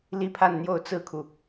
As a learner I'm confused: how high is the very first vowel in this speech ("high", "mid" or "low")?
high